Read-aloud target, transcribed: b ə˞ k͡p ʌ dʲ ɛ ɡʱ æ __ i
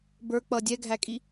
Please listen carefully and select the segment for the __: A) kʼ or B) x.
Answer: A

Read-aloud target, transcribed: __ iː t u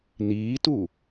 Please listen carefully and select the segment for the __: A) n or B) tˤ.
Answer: A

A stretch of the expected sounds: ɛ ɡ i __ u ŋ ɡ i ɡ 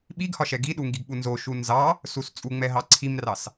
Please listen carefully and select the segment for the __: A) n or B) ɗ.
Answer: B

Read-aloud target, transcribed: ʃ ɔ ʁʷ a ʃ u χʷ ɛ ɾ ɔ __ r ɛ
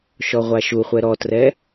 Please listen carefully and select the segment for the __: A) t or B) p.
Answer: A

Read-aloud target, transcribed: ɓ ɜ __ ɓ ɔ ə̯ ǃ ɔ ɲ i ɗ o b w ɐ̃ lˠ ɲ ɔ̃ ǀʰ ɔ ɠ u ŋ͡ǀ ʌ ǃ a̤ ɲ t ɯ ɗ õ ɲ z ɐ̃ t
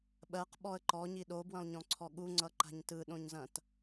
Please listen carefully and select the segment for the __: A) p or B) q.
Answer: B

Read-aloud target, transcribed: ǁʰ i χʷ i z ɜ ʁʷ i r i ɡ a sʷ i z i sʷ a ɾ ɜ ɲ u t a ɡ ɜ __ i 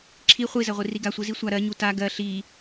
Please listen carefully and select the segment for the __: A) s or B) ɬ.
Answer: B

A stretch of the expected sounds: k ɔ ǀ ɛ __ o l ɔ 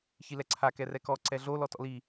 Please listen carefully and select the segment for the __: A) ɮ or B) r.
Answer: A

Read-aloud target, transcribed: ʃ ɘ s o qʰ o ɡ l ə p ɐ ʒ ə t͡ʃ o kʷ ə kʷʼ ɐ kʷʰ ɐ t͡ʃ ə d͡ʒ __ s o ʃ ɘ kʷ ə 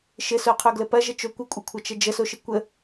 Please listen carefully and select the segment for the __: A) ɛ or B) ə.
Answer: B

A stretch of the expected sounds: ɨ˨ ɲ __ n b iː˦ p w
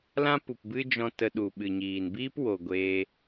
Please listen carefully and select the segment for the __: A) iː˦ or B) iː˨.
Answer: B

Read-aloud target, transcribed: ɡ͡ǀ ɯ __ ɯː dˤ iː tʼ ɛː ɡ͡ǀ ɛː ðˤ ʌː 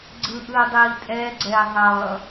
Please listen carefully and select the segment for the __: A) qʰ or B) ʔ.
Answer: B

